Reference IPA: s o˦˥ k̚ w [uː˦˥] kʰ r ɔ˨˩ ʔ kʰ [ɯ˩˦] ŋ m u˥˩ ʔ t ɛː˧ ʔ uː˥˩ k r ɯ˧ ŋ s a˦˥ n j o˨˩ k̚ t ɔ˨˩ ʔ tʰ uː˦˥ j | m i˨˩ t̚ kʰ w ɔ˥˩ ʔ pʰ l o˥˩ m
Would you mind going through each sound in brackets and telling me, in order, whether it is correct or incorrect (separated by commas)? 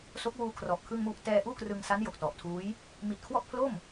incorrect, incorrect